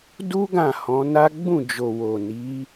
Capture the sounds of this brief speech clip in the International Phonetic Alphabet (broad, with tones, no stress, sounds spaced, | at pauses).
d u˦ ɡ ã˦˨ h ɔ̃˨˦ n a˦ ɡ͡b ũ˦˨ d͡ʒ o˨ w o˨ n i˨˦